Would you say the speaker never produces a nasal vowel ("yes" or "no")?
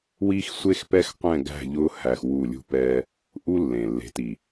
no